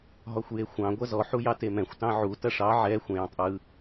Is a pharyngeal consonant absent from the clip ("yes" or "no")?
no